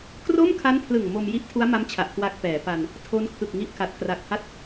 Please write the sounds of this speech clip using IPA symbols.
k r o˥˩ m kʰ a˦˥ n pʰ l ɯ˨˩ ŋ m o˧ m j i˦˥ ʔ tʰ u˦˥ a̯ m a˦˥ m t͡ɕʰ a˨˩ ʔ k w a˦˥ k̚ p ɛː˩˦ p a˧ n | tʰ o˦˥ n kʰ ɯ˨˩ k̚ ŋ i˦˥ ʔ k a˨˩ t̚ k r a˨˩ k̚ h a˥˩ t̚

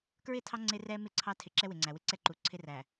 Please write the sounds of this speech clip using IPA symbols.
k ɹ ɪ˦˨ tʰ ɑ˦ ŋ͡ǀ ɪ˦ r ɛ˦ m ɪ˦˨ ǀʰ ɑ˦ tʰ ɪ˨ ǁ ɛ˦ w ɪ˨ ŋ͡ǀ æ˨ w ɪ˦ ǀ ɛ˦ ǃ u˨ ǀʰ ɪ˦ r æ˨

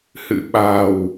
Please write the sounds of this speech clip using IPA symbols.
h ɨ̰˧˨ ɓ a̤˨˩ w

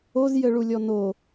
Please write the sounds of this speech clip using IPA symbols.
o z j ɘ ɭ u lʲ ɔ n o

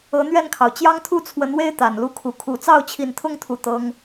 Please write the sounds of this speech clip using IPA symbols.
ɤ˨˦ n̪ ɥ ɛ˥˨ n kʰ ɑ˩ ʊ̯ t͡ɕ j ɑ˦ ŋ t̪ʰ u˥˨ t͡sʰ w ə˨˦ n w e˦ ɪ̯ t̪ a˨˩ n l u˥˨ kʰ u˨˩ kʰ u˨˦ t͡s ɑ˥˨ ʊ̯ t͡ɕʰ i˨˩ n t̪ʰ ʊ˥˨ ŋ t̪ʰ u˨˩ t̪ ɤ˦ ŋ

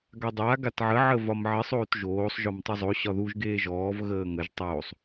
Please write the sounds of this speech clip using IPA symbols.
ɡ a dˤ a ɡ a t ʕ ə ʕ ə v ɒ m ʕ ɪ sˤ oː t ʒ oː sˤ ʒ ɔ m tˤ u zˤ o ɕ ɒ ð u ʒ ɡ eː ʒ ɔː v ɣ əː ŋ ə ʒ tˤ oː sˤ

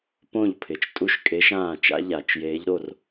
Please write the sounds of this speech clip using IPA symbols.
p õ˥˩ ʎ pʰ ɪ˩˧ t͡ʃ tʼ u˥˧ ʃ kʼ e˧˥ ʃ ãː˥˩ t͡ʃ a̰˧˥ ʎ a˩˧ t͡ʃ j eː˧˥ ʎ ɾ o˥˧ r

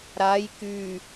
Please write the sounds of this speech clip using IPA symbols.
ɾ a j k y

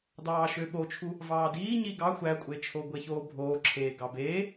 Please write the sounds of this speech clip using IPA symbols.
d ɑː ʃ ø ɓ o t͡ʃʰ u | v ɑː d iː ɲ i ɡ ɑ xʷ æ kʷʼ e t͡ʃʰ o ɡʷ e ç oː bʱ oː ǁʰ eː ɡ ɑ b eː

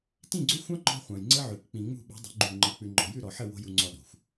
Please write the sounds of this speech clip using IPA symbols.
t ĩ˦˨ ɡ͡ǀ ʏ˦ xʷ ɑ̃˦ ŋ͡ǃ ɔ̤˦ χʷ ɑ̃˨ j ŋ͡ǀ ə˦ ʕ ʉ˨ k k͡p ĩ˨ ŋ͡m ṳ˦˨ ɓ ṳ˨˦ dˤ ə̤˨˦ ɡ͡ǃ u˦˨ ŋ͡ǃ ɜ˧ k͡p ʉ˧ ŋ͡ǃ ɔ̤˧ j ʉ˦˨ ɾ ɔ˨ ħ ə˦˨ w o̤˦ j u˧ ŋ͡ǀ ɔ˧ ɗ o̤˨ xʷ

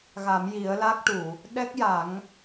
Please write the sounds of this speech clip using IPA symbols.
ɣ a˨˩˦ m j i˨˩˦ ə̯ l a˦˥ k̚ ʈ u˨˩˨ | ɗ ɛ˦˥ k̚ j a˨˩˦ ŋ

